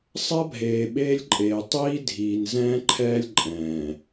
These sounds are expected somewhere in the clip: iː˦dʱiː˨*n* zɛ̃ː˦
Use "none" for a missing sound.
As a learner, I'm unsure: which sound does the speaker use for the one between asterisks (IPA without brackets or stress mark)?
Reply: n